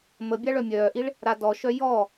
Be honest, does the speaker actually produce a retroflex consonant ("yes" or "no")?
yes